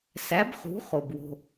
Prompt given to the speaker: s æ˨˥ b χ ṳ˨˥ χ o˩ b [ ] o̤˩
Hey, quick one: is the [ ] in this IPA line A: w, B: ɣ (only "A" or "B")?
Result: A